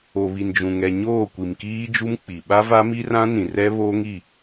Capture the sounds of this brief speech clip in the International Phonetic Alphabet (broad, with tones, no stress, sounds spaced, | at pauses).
o˨ β i˨ n d͡ʒ ũ˨ ŋ ɛ˨ ɲ oː˦˨ kʷ i˨ m k iː˦ d͡ʒ u˦ m k͡p i˨ ɓ a˦ v a˦ m i˦ r ã˦ n ĩ˨ r ɛ˦ β oː˦ ŋ i˦˨